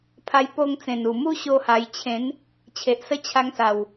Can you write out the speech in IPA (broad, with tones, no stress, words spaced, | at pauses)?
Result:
pʰa˧jpo˧ŋt͡sẽ˨˩nu˨˩ mu˦ ɕo˦ha˧j t͡ɕʰẽ˨˦n | t͡ɕʰe˨ʔsə˦t͡ɕʰa˧ŋsa˨˩w